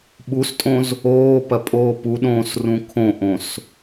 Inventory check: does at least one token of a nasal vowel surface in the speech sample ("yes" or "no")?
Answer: yes